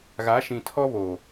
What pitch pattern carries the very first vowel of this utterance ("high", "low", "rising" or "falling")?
rising